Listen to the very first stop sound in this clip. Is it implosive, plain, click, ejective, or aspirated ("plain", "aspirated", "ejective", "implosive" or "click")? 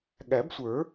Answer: implosive